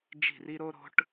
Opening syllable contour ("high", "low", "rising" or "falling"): falling